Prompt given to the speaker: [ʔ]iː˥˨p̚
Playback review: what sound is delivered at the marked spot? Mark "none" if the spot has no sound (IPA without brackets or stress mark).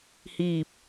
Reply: h